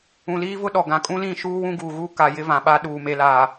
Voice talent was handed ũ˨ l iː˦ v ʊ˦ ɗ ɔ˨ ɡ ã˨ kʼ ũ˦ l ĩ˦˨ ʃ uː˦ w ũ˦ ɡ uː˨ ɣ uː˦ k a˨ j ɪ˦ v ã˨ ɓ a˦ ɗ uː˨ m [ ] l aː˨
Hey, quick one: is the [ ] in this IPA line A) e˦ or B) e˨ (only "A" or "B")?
B